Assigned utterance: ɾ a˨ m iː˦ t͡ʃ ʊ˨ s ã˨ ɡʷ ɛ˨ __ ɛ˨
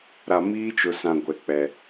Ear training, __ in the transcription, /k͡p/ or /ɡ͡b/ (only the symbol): k͡p